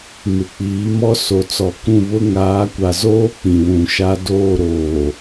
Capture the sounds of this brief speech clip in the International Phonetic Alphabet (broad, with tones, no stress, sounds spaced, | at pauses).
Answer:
m ɪ˨ k͡p iː˨˦ m ɔ˦ s o˨ t͡s ɔ˨ k ũ˦˨ β ʊ˦ ŋ aː˨˦ kʷ a˨ z oː˦ k͡p ĩ˨ w ũ˨ ʃ a˦ d oː˦˨ ɾ oː˨